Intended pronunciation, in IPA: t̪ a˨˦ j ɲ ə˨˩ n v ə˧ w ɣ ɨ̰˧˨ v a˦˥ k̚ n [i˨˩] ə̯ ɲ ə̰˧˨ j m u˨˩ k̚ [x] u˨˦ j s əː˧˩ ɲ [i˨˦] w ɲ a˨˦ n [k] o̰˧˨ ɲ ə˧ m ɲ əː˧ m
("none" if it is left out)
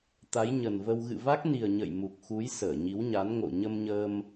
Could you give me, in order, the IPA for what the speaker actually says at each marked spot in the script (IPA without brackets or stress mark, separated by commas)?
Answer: i˨˩, x, i˨˦, ŋ